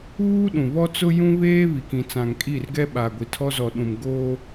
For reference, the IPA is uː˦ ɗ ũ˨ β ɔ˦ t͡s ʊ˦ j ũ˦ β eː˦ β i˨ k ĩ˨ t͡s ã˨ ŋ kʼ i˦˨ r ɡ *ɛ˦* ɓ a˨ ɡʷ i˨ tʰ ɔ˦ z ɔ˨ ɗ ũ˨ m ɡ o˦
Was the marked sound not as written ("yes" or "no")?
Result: no